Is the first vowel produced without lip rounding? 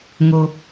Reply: no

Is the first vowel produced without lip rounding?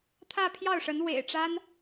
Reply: yes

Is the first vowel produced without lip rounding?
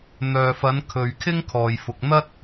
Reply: no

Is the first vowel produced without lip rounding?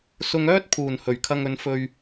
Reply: no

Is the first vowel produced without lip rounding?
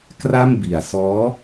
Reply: yes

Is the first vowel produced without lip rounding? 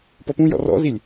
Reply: no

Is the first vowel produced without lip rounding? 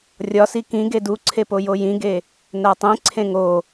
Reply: no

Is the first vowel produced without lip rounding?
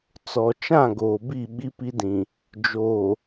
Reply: no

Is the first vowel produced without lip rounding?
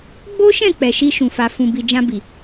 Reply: no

